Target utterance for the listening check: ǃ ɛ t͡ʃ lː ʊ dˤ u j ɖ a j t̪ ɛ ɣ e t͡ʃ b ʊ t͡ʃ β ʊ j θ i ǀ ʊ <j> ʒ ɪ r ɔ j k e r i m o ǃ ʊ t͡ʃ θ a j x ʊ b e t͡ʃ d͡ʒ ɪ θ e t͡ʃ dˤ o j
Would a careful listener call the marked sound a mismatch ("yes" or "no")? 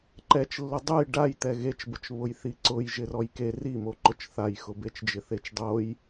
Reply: no